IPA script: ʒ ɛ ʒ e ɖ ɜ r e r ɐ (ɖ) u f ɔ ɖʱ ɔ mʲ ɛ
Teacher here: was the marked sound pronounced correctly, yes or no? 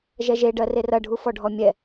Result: no